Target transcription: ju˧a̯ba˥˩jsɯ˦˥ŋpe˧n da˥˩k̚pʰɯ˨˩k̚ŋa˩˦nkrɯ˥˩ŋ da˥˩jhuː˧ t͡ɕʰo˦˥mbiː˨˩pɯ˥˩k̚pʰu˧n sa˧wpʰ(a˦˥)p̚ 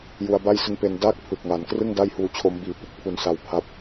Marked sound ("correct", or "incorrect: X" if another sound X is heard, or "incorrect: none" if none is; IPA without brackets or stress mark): correct